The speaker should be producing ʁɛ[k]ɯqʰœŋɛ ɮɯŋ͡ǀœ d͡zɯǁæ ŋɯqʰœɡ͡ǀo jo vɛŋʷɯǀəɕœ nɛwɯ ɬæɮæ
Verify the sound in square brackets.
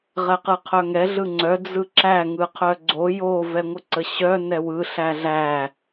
incorrect: q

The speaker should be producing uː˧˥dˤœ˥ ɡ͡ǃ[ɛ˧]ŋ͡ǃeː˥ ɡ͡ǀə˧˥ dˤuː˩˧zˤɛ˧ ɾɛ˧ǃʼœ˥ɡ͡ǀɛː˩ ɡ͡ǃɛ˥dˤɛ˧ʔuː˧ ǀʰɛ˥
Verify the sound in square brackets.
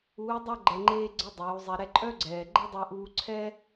correct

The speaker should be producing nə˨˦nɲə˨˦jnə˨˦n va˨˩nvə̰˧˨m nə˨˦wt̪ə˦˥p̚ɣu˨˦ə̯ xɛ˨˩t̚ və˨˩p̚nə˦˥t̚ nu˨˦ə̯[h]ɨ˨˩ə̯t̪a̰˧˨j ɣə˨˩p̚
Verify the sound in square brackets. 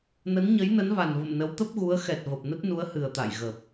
correct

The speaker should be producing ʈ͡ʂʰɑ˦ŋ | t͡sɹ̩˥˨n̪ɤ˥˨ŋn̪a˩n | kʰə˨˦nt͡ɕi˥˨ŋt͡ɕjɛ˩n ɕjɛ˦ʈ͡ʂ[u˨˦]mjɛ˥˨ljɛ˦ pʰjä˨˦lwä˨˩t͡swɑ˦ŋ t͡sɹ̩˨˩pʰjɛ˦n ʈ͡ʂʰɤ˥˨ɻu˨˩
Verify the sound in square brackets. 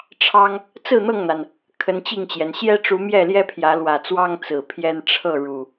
correct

